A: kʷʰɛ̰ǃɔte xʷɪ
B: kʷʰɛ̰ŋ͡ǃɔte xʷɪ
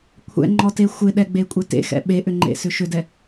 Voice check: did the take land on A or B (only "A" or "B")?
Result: B